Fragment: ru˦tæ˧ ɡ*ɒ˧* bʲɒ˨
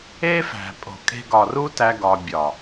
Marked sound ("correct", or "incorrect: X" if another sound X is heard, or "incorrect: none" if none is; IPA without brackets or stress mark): correct